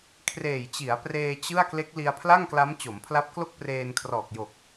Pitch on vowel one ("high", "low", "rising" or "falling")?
low